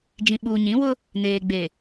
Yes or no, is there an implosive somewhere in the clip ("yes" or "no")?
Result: yes